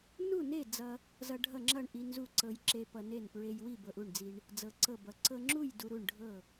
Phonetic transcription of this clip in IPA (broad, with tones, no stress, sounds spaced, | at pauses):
n u˥˨ n e˥˨ d͡z ʌ˧ | z ʌ˧ ɖʱ ʌ˥˨ ŋ͡ǁ ʌ˥˨ ɳ ʔ i˧ n z u˥˨ ǀ ɤ˧ j ǁ e˧ p ʌ˧ n e˥˨ n p ɹ e˧ j w i˥˨ b ɤ˧ ʔ u˥˨ ɳ d͡z i˧ ɳ | d͡z ɤ˧ ǀ ɤ˥˨ b ʌ˧ ǀ ɤ˧ ŋ͡ǁ u˥˨ j d u˧ ɾ u˥˨ ɳ ɖʱ ɤ˥˨